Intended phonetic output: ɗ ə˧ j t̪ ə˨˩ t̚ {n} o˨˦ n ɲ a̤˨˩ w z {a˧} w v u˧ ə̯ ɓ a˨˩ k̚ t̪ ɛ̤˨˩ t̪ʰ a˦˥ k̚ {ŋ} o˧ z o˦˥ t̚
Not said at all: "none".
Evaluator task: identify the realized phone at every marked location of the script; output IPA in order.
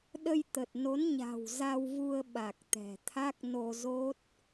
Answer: n, a˧, n

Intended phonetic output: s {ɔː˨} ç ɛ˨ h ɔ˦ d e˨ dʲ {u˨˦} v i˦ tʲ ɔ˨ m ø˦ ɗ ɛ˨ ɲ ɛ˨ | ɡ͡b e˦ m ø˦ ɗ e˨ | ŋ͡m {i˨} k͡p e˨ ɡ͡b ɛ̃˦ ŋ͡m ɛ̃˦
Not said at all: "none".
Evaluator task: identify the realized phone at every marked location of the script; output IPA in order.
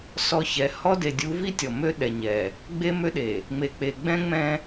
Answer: ɔ˨, u˨˦, e˨

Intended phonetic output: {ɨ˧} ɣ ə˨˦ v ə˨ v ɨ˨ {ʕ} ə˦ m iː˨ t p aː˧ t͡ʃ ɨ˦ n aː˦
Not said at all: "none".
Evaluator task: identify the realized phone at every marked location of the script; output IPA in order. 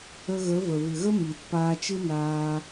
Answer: ə˧, ɣ

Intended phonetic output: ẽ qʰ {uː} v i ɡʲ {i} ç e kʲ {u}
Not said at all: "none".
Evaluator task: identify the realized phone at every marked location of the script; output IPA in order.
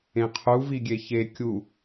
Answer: u, e, u

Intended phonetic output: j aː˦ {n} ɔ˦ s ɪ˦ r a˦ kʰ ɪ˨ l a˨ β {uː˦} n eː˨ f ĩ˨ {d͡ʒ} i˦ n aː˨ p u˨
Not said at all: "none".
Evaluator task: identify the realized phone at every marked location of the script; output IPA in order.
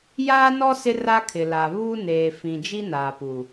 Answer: n, uː˦, d͡ʒ

